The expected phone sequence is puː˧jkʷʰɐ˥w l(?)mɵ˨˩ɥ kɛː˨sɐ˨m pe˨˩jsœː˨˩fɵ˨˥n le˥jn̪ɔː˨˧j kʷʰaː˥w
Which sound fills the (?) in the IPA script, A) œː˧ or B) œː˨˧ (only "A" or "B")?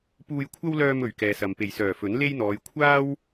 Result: A